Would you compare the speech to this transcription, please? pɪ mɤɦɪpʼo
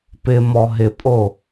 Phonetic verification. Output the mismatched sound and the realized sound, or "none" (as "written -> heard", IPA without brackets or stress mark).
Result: ɤ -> ɔ